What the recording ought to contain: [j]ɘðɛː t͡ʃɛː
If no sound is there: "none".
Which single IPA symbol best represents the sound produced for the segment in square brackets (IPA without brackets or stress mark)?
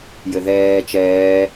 j